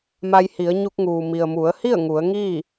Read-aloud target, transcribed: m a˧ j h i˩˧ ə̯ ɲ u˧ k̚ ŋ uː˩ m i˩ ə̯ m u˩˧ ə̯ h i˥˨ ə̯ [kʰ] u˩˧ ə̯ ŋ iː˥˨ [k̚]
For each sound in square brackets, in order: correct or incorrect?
incorrect, incorrect

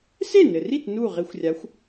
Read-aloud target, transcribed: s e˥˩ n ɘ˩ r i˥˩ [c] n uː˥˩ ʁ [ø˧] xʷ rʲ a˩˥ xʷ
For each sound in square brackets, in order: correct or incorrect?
incorrect, incorrect

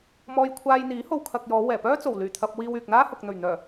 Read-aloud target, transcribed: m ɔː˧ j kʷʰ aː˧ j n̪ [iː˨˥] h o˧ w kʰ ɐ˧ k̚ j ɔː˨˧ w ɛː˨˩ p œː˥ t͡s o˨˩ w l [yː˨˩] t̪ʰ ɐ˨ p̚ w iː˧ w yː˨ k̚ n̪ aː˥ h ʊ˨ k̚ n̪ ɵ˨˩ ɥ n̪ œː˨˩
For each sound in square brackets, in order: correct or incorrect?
correct, correct

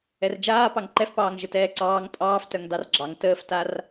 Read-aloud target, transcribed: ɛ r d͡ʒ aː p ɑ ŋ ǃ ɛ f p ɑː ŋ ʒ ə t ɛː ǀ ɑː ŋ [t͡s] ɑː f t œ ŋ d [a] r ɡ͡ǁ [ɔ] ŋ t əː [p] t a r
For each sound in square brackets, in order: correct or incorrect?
incorrect, incorrect, incorrect, incorrect

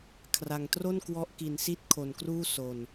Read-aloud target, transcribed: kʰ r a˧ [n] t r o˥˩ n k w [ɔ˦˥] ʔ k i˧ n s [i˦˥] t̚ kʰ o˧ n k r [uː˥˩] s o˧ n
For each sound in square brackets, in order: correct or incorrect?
incorrect, correct, incorrect, correct

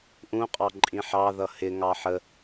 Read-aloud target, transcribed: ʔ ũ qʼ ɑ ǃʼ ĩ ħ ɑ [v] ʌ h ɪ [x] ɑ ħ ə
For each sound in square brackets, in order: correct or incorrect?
incorrect, incorrect

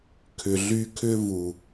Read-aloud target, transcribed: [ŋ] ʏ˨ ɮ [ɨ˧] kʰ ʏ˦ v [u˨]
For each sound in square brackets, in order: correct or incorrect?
incorrect, incorrect, correct

